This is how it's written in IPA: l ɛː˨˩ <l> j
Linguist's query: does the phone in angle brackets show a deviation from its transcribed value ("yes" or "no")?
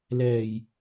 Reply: yes